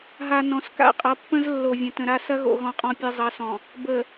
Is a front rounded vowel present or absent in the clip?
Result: absent